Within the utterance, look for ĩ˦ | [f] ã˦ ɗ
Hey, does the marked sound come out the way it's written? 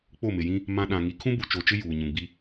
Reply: no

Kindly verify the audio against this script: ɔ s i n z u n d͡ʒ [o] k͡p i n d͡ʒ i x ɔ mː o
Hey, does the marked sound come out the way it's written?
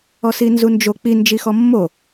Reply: yes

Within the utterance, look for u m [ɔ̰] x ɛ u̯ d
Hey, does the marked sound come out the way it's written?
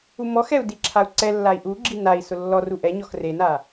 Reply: no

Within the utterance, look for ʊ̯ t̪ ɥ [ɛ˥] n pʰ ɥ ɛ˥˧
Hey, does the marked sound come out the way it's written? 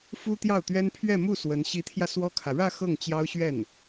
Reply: yes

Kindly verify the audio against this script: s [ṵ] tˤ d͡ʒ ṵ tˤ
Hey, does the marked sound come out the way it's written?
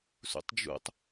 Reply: yes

